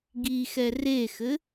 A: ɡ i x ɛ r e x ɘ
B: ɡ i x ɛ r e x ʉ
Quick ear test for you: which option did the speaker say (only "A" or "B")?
A